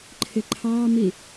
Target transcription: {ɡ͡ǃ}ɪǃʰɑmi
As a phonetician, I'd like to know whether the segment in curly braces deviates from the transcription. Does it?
yes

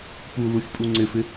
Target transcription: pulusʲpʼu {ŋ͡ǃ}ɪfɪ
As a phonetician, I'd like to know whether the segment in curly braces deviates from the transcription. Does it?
yes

